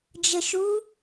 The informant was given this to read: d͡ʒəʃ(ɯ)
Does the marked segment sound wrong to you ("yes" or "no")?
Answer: yes